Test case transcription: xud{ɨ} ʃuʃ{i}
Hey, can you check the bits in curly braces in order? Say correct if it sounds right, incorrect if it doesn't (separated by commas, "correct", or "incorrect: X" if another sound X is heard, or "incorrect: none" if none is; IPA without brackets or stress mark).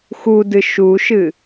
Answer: correct, incorrect: ɨ